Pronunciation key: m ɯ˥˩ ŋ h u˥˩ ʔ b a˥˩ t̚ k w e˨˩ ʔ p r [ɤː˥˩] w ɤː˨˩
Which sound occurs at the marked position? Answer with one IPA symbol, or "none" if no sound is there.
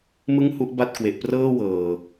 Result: ɤː˥˩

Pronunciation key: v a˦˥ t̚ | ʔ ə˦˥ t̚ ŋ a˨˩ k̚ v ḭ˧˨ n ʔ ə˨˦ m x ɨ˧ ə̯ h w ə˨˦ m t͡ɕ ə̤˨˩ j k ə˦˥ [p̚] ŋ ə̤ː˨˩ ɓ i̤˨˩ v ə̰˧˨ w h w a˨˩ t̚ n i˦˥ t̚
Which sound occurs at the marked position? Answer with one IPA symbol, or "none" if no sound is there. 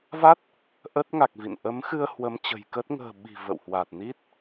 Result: t̚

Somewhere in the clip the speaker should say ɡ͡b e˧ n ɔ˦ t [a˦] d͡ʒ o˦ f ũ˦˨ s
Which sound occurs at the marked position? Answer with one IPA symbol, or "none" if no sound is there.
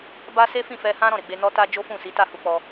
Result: a˦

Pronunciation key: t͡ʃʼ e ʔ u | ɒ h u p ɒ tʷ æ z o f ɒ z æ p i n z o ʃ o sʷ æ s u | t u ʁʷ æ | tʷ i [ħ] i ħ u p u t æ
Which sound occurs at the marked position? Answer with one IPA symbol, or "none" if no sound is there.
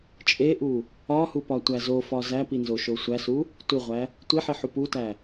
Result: ħ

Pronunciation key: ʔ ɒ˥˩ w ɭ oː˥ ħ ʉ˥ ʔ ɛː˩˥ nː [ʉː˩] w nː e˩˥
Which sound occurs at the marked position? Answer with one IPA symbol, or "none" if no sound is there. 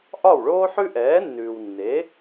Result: ʉː˩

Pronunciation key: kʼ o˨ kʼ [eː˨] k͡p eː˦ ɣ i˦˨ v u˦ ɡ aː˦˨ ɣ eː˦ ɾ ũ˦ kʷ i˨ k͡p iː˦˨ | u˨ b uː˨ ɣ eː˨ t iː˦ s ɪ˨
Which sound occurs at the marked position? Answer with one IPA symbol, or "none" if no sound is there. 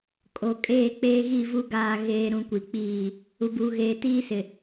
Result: eː˦˨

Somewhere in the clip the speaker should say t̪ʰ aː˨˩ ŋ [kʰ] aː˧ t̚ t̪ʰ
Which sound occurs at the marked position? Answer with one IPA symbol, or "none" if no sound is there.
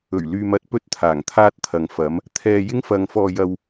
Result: t̪ʰ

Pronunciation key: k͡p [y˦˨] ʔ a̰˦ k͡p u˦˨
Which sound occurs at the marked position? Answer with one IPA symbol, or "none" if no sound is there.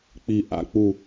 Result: i˦˨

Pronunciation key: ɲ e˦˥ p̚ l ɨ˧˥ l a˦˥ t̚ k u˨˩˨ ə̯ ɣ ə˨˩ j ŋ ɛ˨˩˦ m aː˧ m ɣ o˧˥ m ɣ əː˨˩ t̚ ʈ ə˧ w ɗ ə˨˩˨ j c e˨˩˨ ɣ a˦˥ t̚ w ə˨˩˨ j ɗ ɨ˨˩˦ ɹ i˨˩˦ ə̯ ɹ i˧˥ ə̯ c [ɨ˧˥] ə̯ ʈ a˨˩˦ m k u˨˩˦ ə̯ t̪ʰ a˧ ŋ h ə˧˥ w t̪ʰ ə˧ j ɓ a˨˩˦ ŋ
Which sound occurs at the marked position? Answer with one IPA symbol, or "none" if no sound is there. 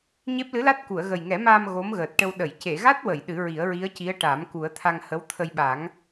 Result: i˧˥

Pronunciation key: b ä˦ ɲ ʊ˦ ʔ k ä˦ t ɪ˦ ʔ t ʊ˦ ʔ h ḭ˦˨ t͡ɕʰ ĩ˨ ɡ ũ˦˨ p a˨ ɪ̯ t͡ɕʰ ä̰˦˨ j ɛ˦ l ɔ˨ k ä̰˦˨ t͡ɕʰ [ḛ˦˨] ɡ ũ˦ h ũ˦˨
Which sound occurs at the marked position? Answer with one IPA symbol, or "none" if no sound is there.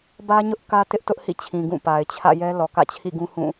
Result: ḭ˦˨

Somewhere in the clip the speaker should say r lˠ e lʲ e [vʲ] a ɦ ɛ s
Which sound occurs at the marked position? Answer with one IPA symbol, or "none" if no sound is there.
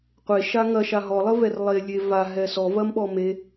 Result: v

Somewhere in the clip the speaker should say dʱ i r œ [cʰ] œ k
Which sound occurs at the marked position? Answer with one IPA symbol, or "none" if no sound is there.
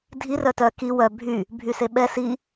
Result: t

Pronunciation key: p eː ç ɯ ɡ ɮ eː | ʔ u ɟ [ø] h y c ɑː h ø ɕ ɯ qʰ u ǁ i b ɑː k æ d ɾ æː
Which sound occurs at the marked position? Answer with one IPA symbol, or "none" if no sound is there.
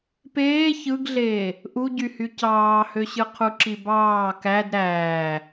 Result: y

